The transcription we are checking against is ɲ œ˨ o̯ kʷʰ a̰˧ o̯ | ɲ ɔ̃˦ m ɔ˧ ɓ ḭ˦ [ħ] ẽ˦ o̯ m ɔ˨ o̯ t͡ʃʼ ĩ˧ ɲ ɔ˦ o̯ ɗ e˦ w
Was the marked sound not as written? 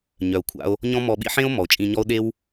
no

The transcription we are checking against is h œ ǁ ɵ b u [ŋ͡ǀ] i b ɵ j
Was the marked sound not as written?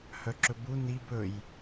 yes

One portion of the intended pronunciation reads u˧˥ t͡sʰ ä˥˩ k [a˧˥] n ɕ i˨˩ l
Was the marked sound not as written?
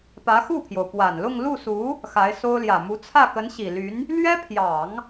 yes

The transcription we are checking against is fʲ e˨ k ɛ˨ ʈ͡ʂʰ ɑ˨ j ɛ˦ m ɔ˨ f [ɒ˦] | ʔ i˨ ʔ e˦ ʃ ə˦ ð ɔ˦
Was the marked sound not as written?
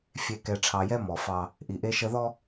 yes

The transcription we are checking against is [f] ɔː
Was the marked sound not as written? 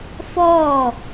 no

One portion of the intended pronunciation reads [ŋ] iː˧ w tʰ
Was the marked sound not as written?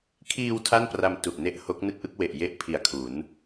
yes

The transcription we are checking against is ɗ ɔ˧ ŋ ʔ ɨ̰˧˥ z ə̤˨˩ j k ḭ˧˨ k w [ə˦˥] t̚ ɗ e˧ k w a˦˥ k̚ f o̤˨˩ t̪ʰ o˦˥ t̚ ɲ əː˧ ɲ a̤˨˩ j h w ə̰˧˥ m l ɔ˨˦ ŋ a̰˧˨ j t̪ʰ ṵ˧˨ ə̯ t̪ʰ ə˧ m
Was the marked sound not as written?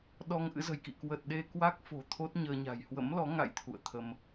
yes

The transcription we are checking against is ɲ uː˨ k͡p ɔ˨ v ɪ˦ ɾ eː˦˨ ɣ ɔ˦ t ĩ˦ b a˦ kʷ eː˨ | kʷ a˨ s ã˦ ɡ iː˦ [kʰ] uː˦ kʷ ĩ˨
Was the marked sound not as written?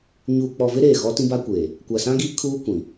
no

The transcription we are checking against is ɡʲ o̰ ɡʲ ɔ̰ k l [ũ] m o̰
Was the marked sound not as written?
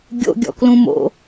no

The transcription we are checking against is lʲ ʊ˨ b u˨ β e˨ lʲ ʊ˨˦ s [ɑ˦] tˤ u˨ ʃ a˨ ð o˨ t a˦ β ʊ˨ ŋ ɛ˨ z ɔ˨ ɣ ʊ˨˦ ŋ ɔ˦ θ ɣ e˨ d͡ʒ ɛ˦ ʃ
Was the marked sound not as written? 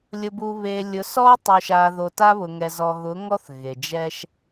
yes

